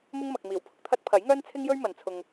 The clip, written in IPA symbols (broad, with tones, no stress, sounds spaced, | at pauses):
m ʊ˥ ŋ m ɐ˨ k̚ m iː˨˩ w pʰ ʊ˨ k̚ t̪ʰ ɐ˥ t̚ pʰ ɐ˨˥ j ŋ œː˥ n t͡sʰ ɪ˥ ŋ j ɵ˥ ɥ m ɐ˨˧ n t͡sʰ ʊ˧ ŋ